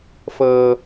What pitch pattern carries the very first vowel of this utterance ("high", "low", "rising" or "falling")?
low